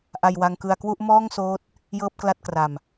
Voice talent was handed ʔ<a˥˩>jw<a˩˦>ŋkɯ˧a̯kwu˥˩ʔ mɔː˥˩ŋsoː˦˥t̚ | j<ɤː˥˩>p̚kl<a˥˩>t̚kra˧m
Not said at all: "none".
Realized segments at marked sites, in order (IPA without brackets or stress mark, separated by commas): a˧, a˧, ɤː˥˩, a˥˩